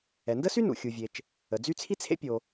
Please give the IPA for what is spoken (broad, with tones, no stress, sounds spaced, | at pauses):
ɛ˩ n d ə˥ s y˥ n ṵ˩ xʲ u˩ vʲ e˩ t͡ʃ | ə˩ d͡z y˥ t͡sʰ i˥ t͡sʰ ḛ˥ pʲ o˩